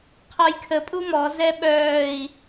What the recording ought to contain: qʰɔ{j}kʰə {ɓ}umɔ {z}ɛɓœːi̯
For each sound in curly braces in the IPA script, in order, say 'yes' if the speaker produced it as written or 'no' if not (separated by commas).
yes, no, yes